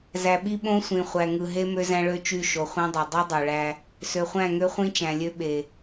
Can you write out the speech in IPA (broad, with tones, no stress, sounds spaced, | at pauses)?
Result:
z æ˨ ɓ i˦ ɓ õ˦ sʷ ĩ˨ χʷ æ˨ ŋ ɯ˨ ɦ e˦ m ø˦ z æ̃˦ ɭ ø˦ t͡ʃ y˦˨ ʃ o˨ χʷ ẽ˦ dˤ ø˨ dˤ i˦ dˤ o˨ ɭ æ˦ | s ø˨ χʷ æ̃˦˨ ŋ ø˦ χʷ ĩ˦ t͡ʃ æ̃˨ lʲ ø˦ ɓ e˨